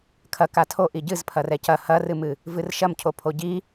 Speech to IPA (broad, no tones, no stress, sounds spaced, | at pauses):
kʰ ɐ k a tʰ o ʔ i ɟ ɨ z pʰ ɐ r ɛ c ɐ h ɐ r ɨ m ɨ | v ɨ r ʃ ɐ m cʰ o pʰ o ɟ i